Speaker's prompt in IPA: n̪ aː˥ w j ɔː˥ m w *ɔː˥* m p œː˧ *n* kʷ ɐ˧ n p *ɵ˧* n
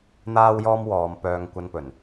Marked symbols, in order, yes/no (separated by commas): no, no, no